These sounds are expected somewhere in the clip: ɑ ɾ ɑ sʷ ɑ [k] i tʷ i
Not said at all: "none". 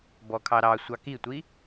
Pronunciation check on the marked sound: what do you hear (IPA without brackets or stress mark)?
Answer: k